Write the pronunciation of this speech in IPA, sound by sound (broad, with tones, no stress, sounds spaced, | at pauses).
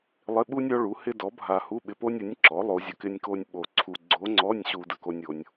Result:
lˠ ɪ˧˥˧ ɓ u˥ nʲ ɔ˧˥ ɭ u˩˥ h ɪ˥ d ɔ˩˥ bʱ a˧ h u˧˥˧ ɓ ɪ˧ p o˥ nʲ ə˩˥ nʲ ǁ ɔ˩˥ lˠ o˧˥ zʲ ə˧ k ɪ˥ nʲ k o˥ nʲ ɓ o˧ ǀʰ u˧ ɡ͡ǀ o˧˥ ŋ͡ǀ ɔ˧˥˧ nʲ ɕ u˧ d ə˥ k o˥ nʲ o˧˥ nʲ